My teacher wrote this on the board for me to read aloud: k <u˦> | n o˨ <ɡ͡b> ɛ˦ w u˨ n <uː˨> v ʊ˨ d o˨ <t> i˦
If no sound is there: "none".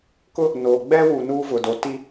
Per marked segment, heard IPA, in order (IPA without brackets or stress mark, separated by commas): ʊ˦, ɡ͡b, uː˦, t